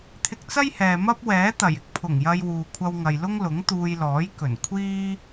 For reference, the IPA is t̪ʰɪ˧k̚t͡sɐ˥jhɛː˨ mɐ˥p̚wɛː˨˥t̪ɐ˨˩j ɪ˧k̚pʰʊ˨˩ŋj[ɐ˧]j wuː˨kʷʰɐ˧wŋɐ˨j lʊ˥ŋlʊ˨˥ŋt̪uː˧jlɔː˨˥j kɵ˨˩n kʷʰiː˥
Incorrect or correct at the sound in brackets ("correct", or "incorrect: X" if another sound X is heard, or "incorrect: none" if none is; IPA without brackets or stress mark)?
correct